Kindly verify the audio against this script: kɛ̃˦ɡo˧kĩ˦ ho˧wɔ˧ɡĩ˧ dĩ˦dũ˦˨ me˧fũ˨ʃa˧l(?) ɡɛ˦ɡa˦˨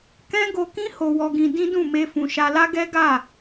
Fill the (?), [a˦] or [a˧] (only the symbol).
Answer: a˦